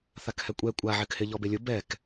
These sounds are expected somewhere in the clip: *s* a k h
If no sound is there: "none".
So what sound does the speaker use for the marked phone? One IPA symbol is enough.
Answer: θ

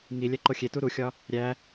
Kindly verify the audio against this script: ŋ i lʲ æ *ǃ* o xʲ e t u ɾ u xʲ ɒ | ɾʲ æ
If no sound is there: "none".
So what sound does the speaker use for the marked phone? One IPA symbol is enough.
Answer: ǃ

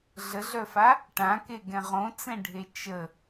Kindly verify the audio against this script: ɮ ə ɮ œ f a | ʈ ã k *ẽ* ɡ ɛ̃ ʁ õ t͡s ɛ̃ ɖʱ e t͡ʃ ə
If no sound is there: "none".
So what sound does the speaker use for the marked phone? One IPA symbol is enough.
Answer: e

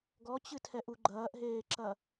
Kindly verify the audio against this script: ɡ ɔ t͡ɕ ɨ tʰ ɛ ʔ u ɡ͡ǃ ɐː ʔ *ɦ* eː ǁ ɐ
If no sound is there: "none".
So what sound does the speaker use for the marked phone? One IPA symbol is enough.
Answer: ɦ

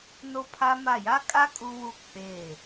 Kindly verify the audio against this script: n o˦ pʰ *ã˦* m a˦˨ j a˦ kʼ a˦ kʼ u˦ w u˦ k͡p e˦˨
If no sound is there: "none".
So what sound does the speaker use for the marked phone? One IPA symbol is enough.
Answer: a˦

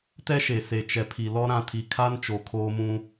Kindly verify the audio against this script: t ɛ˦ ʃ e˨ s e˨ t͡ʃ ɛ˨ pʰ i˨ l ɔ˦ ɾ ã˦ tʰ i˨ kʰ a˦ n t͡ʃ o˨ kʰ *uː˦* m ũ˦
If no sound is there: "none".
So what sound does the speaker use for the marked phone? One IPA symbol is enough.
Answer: oː˦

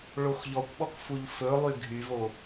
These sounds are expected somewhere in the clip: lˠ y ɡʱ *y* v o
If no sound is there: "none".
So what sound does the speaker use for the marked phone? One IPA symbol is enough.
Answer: y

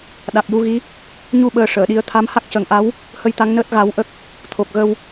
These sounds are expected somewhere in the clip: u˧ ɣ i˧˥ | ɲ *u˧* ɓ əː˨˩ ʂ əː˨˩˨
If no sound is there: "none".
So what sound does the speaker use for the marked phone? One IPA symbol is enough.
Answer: u˧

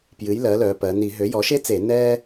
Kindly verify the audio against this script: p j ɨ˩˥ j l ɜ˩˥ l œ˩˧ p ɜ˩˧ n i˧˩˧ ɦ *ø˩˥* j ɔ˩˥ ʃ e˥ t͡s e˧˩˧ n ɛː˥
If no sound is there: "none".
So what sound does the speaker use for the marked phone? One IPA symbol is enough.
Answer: ø˩˥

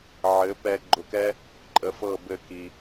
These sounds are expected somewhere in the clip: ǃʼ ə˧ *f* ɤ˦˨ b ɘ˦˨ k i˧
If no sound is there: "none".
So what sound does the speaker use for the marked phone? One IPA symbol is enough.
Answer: f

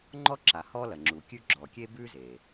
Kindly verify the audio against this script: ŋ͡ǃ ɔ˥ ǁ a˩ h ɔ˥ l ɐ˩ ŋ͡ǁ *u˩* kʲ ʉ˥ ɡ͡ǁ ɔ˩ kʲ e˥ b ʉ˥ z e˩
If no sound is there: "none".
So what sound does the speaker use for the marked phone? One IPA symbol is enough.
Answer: u˩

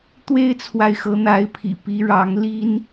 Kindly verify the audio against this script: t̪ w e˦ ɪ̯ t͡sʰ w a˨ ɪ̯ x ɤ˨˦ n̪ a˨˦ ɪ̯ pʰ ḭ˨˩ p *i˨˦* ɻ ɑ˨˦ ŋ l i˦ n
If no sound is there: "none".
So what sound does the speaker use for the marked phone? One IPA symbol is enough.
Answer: i˨˦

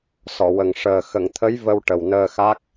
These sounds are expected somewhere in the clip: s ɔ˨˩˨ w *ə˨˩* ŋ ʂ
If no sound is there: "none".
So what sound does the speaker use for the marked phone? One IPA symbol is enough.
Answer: ə˨˩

